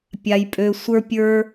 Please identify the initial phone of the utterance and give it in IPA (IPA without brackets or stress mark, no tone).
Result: pʲ